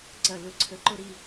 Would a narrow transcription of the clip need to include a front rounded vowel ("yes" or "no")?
no